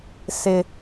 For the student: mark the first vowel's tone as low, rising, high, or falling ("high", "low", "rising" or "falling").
high